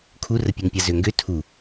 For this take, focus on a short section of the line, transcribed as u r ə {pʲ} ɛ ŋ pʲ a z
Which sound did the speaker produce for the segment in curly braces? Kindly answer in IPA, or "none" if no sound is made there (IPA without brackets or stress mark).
pʲ